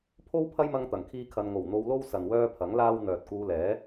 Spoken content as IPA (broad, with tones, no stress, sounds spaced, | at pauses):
pʰ o˥ w pʰ ɐ˥ j m ɐ˧ ŋ t̪ ɐ˨˩ ŋ kʰ iː˥ kʰ ɐ˧ n ŋ o˨˩ w n̪ o˧ w l o˥ w s ɐ˨ n w œː˥ pʰ ɐ˨˥ ŋ l aː˥ w n̪ œː˨ t̚ k uː˧ l ɛː˨˥